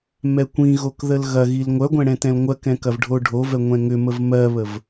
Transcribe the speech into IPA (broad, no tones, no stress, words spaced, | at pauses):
mɛkʷĩɣok ðəlɣɐɣil ŋʷœɡʷɛ̃ ɽɛ̃tɛ̃lŋʷɜkɛ̃ kɐvɖʱoɖʱovɛ ŋʷɛ̃ŋʏməv mɜβəv